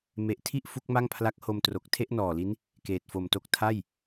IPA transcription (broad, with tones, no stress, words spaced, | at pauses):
me˨˩ʔtʰi˥˩ʔ fu˦˥k̚ma˥˩ŋpʰla˦˥k̚ ho˧mtro˨˩k̚ tʰe˥˩ʔnɔː˨˩li˦˥n | keː˨˩t̚fo˨˩mto˥˩k̚ tʰa˥˩j